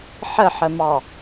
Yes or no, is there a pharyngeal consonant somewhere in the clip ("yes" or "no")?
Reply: yes